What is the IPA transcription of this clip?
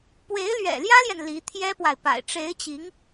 pwe˧˥ɪ̯lɥɛ̰˨˩ljä˥ljɛ˨n li˧˥ t̪ʰjɛ˥pwa˨ɪ̯pa̰˨˩ɪ̯ ʈ͡ʂe˧˥ɪ̯t͡ɕi˧˥ŋ

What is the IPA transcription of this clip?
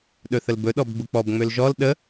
ɗɵθəlbɵ ɗɔbɡ͡buk͡pɔb ŋ͡mølʒɔl ɗə

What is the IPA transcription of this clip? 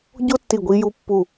ɟo˥tːi˧˩ ɡʷi˧ju˧ pːu˧˩

